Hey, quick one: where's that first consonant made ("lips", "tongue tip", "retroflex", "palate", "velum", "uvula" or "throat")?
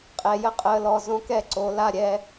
uvula